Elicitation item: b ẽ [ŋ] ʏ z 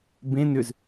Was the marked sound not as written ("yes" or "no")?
yes